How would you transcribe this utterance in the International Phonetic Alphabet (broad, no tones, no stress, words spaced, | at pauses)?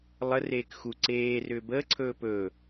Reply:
lˠə reːkxu ǀeː rʏːbəː ǀʰɵːpɵː